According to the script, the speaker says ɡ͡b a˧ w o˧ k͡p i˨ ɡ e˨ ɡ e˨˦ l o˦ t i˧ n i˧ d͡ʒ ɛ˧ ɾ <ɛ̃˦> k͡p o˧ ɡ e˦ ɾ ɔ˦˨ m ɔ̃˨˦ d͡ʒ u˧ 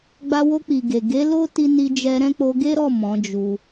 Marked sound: correct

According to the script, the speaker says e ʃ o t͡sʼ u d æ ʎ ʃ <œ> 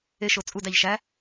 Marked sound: incorrect: æ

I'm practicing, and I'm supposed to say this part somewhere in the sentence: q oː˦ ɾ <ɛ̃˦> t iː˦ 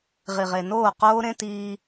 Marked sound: incorrect: ẽ˦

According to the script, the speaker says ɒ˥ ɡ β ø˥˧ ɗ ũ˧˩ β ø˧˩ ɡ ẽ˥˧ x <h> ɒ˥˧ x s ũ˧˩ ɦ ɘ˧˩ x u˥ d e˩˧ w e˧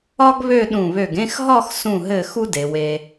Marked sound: incorrect: ɦ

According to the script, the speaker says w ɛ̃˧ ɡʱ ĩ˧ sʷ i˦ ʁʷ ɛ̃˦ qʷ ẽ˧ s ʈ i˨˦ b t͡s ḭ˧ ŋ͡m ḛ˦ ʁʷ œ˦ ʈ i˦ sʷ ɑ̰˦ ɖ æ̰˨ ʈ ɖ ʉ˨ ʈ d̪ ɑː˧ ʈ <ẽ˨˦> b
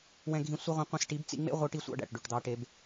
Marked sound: incorrect: e˨˦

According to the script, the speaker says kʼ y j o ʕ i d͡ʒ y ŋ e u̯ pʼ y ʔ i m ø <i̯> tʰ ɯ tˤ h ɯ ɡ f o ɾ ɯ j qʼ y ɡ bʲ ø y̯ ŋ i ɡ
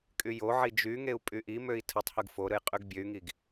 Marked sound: correct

